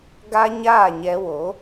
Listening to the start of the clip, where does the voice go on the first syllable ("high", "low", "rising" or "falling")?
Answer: high